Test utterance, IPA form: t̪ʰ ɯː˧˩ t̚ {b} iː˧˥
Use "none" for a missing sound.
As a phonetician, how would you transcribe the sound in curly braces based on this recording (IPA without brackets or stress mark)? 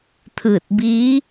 b